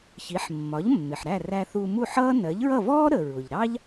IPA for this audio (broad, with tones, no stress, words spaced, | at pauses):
çi˩˥ħmːɒ˩˥ʎmːɪ˩ħ ɾæ˥˩ræ˧ θu˧mu˥˩ħʌː˥ nɜ˩˥ʎɹʌ˥˩vɔː˥ɾə˩ ɹʊ˩ʎɾɑ˥ʎ